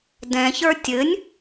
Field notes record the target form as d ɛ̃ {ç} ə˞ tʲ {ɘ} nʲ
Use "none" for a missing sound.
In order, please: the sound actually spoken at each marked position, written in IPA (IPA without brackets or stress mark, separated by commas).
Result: ç, ɘ